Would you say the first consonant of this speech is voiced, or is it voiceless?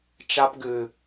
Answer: voiceless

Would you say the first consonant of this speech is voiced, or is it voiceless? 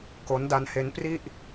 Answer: voiceless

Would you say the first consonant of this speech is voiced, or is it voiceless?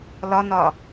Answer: voiced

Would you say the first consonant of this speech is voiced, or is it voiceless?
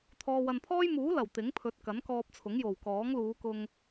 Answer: voiceless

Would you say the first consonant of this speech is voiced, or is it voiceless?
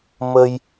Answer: voiced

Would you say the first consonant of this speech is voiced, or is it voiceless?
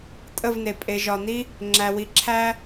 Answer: voiceless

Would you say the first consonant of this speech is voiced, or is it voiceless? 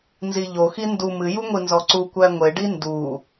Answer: voiced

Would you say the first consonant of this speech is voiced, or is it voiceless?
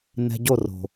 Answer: voiced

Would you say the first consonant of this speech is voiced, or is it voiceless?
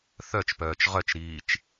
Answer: voiceless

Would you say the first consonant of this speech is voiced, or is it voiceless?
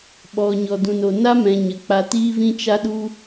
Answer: voiced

